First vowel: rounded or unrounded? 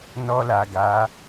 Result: rounded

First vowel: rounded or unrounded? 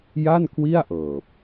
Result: unrounded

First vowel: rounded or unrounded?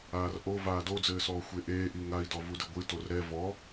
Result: unrounded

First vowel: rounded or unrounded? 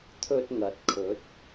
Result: rounded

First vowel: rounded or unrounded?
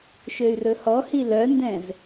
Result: rounded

